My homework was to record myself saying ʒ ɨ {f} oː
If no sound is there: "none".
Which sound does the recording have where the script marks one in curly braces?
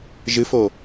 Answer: f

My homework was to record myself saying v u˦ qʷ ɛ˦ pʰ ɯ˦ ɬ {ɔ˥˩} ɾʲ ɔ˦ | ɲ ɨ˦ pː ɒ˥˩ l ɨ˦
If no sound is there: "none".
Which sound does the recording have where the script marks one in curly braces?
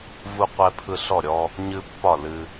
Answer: ɔ˥˩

